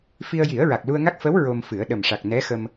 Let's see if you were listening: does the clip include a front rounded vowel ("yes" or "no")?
no